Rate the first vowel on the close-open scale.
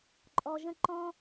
mid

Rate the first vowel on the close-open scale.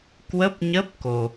mid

